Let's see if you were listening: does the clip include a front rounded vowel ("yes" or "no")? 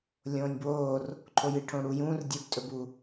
no